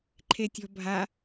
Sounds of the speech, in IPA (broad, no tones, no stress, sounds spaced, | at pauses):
ǃʰ e tʲ ɔ̤ bʱ a